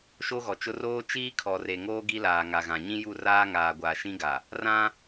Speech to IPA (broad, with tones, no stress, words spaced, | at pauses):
ʃo˦ɣɔ˨t͡ʃʊ˦ roː˦t͡ʃiː˦ kʰɔ˨re˨ŋoː˦ ɡi˦laː˨ŋa˨ɣã˨ ɲĩ˦ju˦˨ raː˦ŋaː˨ɡʷaː˨ ʃĩ˦ɡa˨ | rã˦